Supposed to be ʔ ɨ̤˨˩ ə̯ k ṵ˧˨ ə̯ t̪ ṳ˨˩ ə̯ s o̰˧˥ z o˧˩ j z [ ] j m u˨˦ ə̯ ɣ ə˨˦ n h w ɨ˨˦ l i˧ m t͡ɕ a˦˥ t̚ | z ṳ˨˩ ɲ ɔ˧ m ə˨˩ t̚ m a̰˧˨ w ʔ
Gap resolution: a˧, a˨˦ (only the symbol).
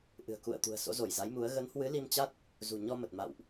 a˨˦